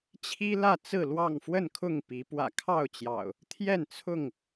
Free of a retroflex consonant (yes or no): yes